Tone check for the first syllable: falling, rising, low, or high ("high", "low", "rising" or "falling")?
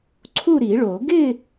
falling